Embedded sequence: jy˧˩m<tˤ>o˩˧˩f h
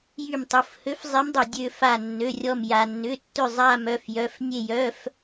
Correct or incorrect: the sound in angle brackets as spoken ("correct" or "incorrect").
correct